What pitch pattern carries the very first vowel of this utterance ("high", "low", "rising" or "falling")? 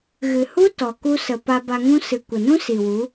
low